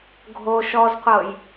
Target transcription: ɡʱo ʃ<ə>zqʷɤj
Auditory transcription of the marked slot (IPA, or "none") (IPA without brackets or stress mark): ɔ